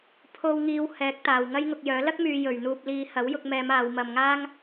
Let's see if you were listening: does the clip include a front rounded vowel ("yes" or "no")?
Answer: yes